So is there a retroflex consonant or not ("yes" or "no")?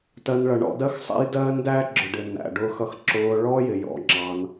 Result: yes